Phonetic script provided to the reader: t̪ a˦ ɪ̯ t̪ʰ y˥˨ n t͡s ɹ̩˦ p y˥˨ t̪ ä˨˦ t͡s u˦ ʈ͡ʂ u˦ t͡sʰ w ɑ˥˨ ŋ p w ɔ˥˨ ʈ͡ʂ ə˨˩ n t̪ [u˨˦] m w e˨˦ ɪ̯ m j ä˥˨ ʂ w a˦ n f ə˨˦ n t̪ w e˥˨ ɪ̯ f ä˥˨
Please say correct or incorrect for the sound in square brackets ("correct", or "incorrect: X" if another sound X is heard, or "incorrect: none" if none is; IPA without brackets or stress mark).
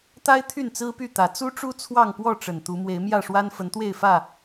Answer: correct